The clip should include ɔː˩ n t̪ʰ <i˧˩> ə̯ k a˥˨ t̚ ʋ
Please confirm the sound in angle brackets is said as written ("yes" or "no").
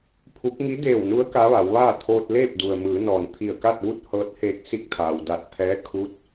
yes